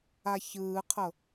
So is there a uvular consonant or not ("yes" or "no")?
yes